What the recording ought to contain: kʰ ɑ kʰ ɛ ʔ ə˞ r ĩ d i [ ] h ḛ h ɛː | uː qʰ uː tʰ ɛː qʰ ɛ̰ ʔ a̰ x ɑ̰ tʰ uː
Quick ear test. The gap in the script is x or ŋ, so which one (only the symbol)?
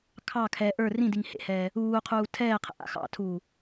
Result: ŋ